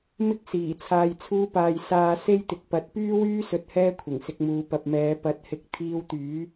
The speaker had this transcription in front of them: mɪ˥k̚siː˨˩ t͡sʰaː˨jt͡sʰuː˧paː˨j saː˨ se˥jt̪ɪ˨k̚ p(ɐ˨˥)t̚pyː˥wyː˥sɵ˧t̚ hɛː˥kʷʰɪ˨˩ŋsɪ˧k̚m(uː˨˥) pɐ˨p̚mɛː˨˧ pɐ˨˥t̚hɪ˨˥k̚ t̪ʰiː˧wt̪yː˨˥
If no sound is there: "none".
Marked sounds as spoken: ɐ˨˥, uː˨˧

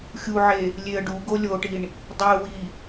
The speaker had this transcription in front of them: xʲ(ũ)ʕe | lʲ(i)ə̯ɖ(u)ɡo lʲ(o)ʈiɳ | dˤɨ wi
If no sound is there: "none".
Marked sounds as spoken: u, e, u, o

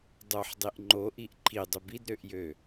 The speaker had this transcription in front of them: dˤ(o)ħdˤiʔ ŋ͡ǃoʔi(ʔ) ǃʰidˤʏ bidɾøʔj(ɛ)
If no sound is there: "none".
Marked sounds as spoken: o, ʔ, ø

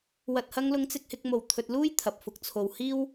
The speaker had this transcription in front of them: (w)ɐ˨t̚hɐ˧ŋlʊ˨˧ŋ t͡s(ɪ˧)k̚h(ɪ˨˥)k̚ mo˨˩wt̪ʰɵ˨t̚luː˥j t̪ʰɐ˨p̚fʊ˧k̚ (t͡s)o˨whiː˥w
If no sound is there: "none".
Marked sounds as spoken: w, ɪ˧, ɪ˧, t͡sʰ

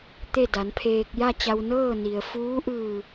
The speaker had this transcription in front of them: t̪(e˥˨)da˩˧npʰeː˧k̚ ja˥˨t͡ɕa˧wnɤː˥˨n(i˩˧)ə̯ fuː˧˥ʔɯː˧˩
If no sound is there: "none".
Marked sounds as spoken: e˥˨, i˩

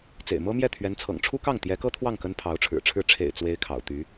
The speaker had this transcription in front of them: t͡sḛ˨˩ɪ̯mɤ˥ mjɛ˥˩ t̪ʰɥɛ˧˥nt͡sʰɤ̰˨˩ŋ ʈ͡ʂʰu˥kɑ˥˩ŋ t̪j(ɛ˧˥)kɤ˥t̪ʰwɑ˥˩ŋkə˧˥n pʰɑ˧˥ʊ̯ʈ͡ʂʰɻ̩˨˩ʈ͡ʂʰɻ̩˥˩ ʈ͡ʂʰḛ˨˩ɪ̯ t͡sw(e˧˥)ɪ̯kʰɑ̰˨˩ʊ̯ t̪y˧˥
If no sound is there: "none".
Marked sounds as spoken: ɛ˧˥, e˥

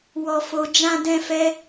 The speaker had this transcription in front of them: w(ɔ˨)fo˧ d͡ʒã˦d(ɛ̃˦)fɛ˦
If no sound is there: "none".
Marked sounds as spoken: ɔ˧, ɛ̃˦

